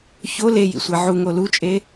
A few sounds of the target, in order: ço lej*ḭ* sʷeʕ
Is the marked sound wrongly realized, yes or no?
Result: no